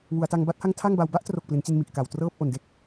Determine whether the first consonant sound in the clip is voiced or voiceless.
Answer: voiced